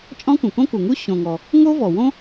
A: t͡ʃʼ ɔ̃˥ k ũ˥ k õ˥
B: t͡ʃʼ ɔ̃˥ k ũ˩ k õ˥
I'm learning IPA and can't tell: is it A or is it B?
B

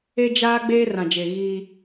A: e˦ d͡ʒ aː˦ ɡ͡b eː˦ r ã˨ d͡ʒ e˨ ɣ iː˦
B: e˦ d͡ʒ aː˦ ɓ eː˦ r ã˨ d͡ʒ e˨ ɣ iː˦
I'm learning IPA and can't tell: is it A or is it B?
A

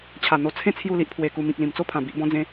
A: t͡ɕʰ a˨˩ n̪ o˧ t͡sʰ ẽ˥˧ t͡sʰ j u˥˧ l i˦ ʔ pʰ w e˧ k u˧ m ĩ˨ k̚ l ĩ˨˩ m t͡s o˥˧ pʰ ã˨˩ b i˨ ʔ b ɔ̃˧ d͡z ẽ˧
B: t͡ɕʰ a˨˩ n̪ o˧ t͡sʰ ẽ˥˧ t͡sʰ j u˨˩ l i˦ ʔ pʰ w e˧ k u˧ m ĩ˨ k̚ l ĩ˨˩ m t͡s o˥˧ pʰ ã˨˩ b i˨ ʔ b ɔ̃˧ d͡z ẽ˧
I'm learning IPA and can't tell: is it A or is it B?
A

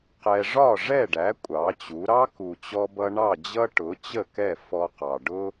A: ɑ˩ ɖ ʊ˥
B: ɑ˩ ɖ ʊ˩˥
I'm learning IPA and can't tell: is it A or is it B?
A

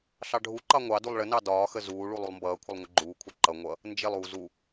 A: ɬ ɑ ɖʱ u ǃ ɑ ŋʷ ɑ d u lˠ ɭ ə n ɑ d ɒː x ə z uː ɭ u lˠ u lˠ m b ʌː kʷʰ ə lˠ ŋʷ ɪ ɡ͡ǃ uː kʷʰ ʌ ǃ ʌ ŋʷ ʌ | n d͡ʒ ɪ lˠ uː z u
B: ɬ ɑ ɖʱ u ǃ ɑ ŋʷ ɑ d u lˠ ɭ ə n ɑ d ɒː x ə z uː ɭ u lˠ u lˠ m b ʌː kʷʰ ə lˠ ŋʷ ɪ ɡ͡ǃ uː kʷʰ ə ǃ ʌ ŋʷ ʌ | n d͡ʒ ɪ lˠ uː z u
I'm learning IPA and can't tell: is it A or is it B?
A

